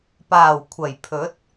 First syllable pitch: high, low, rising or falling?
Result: low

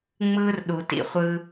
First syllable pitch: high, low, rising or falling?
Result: high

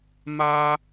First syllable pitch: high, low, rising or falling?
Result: high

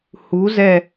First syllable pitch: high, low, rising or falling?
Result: rising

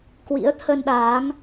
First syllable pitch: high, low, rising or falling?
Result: rising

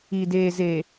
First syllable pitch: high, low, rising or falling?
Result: low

